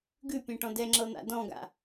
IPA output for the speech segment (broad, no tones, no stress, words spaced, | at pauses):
ɡʉpʲẽʈɔ̃ dɛŋ͡ǁɤn̪a̰ dɔ̃ɡa̰